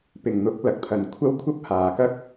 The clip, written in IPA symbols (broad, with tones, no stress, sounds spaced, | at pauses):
p ɪ˨ ŋ n̪ ʊ˨˥ k̚ l ɐ˨ k̚ t̪ʰ ɐ˨ n kʷʰ ɐ˥ w kʷʰ ɐ˥ p̚ h aː˨ k ɐ˥ k̚